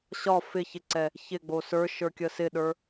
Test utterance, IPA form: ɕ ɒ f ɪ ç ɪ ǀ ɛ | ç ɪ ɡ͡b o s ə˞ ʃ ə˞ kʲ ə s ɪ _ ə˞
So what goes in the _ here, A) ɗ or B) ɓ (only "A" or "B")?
A